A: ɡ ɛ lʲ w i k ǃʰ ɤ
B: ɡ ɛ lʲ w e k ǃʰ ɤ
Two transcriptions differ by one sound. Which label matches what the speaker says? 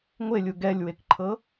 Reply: B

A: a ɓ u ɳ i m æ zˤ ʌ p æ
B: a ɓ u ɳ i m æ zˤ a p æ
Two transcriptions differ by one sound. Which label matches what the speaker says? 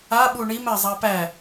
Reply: B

